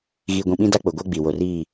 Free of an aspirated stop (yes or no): yes